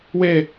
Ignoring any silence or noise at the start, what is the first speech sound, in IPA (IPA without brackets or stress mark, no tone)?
w